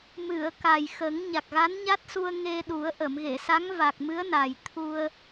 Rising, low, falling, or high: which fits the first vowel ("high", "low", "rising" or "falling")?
low